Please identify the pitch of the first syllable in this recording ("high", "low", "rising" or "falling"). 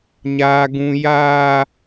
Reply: high